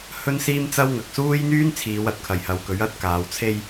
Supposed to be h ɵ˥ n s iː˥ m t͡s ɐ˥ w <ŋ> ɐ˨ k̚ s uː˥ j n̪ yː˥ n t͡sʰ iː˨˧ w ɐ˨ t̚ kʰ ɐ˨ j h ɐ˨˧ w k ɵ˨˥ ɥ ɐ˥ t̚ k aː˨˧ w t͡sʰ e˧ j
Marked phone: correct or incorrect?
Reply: correct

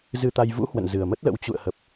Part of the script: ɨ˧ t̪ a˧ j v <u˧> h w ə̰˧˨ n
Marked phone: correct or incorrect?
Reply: incorrect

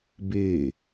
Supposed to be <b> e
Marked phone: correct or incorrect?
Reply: correct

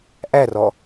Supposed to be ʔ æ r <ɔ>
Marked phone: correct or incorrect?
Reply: correct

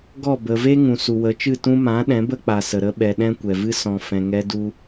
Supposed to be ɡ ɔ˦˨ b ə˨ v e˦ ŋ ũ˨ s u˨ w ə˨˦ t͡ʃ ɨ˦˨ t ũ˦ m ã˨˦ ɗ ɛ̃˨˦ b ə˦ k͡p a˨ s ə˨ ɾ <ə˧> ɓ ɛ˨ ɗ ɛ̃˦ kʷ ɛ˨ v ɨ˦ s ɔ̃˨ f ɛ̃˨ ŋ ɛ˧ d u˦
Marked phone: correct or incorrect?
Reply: correct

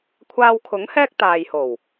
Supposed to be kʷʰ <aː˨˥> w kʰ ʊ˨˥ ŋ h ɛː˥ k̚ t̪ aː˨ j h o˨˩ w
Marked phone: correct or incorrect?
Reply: incorrect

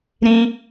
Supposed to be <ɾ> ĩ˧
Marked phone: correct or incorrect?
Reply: correct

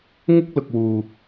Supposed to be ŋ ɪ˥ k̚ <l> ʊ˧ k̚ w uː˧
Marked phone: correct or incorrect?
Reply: correct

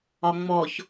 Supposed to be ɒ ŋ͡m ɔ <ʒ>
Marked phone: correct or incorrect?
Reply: incorrect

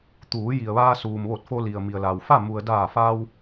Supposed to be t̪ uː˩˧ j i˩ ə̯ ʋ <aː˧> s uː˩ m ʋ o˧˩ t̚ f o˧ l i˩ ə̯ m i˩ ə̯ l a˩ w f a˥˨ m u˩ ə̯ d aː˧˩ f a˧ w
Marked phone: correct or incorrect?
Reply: correct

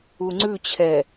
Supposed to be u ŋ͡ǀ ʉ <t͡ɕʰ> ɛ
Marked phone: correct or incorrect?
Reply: correct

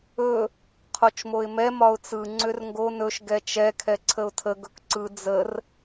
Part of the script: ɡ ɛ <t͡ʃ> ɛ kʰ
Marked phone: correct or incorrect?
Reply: correct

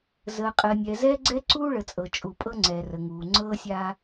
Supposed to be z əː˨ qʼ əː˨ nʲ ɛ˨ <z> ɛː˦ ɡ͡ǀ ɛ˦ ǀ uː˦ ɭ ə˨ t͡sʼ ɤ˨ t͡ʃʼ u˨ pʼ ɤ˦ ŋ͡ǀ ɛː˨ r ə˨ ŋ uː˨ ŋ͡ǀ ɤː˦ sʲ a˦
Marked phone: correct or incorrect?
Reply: correct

